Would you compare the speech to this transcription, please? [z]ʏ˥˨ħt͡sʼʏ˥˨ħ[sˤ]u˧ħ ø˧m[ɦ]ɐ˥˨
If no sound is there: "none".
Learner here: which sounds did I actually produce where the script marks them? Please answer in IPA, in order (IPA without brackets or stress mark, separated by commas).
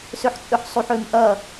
s, sˤ, ʔ